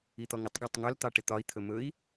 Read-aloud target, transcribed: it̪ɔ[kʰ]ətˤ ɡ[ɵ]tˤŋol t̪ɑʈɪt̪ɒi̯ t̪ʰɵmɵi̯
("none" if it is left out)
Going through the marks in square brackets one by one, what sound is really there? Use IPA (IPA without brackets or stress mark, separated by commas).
ŋ, ɔ